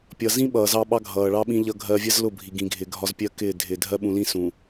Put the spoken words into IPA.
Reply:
pʲ ʌ˨ z ĩ˦ ɓ ʌː˨ z ɑ˦ ɓ ɑ˦ ɡʱ ʌː˨ ɭ ɑ˦ ɓ ĩ˦ ʎ ʌ˦ ɡʱ ɜː˦ vʲ ɜ˦ z l ʊ˦˨ bʱ i˨ ɡ ĩ˨ ɡʱ ɪː˨ ɡʱ ɒ˦ z pʲ ɜ˦ k ɪː˦˨ dʱ ɪː˨ dʱ ɜ˦ ɓ ũ˨ l ĩ˦ s ũ˨

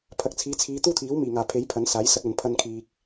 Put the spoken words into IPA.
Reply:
pʰ ɐ˨ k̚ t͡sʰ iː˨˥ t͡sʰ iː˨˧ t̪ uː˥ t̪ʰ iː˨˥ w m iː˨˩ ŋ aː˨˩ pʰ e˨˥ j pʰ ɐ˨˥ n s aː˨˥ j s ɐ˧ k̚ ɐ˨ n pʰ ɐ˧ n kʰ iː˨ k̚

